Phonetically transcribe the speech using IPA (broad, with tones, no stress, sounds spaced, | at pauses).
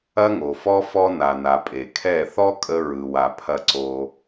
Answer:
ɐ˦ ŋ o˨ f ɔ˦ f ɔ˧ n a˨ n a˨ pʼ e˨ kʰ ɛ˦˨ θ ɔ˦ kʼ ə˧ ɹ ɯ˨ w a˨ pʰ ɐ˧ ǀ o˧